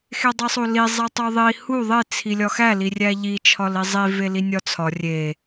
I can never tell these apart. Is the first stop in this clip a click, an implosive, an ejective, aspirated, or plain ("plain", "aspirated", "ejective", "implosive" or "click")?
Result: plain